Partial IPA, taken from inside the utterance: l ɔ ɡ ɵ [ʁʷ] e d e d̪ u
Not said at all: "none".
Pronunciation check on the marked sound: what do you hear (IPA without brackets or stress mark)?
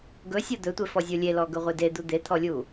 ʁʷ